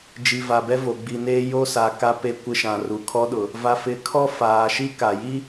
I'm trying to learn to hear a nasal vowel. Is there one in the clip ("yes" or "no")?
yes